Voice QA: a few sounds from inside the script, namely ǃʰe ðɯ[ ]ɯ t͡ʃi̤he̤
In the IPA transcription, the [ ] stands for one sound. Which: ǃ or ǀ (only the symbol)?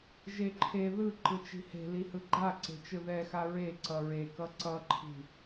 ǃ